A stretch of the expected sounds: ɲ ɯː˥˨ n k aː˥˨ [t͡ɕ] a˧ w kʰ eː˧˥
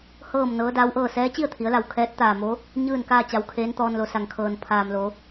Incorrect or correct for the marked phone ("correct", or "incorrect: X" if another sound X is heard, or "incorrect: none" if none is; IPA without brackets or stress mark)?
correct